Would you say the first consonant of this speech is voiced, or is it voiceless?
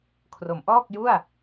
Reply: voiceless